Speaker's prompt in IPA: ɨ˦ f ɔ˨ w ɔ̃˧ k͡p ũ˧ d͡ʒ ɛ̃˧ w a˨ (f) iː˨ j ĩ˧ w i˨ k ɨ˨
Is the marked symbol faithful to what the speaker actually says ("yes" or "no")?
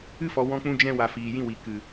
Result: yes